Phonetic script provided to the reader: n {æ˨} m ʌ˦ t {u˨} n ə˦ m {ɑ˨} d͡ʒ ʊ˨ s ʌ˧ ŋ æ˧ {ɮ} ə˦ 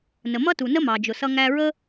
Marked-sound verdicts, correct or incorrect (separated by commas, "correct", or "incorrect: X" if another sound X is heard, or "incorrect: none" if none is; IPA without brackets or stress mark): incorrect: ə˨, correct, correct, incorrect: ɹ